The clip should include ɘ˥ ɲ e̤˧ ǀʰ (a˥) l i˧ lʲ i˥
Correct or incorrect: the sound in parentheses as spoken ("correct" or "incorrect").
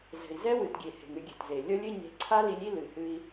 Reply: correct